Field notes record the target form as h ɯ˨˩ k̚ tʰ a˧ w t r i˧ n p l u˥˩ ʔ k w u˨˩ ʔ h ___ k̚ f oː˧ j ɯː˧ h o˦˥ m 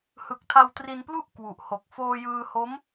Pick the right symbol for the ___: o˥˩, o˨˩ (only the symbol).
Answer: o˨˩